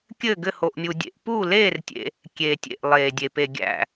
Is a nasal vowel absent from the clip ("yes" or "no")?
yes